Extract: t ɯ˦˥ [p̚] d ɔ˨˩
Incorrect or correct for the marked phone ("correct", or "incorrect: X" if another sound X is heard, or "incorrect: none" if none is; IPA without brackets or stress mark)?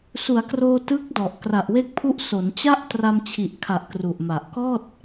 incorrect: k̚